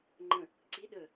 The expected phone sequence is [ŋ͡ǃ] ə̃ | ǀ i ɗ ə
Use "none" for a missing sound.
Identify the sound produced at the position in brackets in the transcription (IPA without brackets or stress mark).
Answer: ŋ͡ǃ